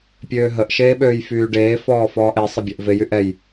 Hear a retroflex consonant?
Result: yes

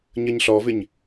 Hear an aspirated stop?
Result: no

